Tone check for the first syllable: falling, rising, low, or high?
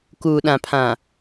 low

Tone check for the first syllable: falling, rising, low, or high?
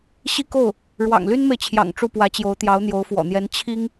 falling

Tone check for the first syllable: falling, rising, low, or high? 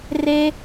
high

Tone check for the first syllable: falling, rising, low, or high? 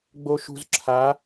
low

